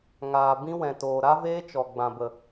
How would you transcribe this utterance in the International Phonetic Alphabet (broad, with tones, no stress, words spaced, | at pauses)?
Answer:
ŋaː˨ bĩ˦wɛ̃˨toː˨ ɾa˦veː˦t͡ʃɔ˨ ɡ͡bã˨bə˨